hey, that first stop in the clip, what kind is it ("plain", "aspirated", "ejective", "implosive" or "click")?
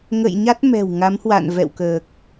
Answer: plain